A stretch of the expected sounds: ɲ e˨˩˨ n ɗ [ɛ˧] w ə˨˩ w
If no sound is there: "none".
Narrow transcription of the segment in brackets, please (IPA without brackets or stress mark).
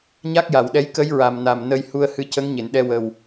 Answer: ɛ˧